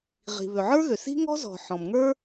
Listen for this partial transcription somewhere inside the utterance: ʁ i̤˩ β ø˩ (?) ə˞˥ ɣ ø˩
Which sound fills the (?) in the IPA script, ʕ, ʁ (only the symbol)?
ʕ